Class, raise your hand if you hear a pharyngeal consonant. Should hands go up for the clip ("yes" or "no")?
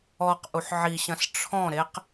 yes